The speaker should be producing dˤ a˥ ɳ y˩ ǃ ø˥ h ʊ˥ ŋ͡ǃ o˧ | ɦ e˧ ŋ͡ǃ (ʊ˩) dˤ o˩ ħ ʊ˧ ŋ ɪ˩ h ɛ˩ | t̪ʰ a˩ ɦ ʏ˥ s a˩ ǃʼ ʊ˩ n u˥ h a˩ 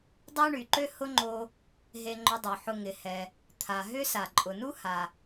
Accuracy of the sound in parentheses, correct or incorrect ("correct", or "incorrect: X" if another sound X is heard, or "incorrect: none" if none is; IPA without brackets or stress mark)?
incorrect: ʊ˧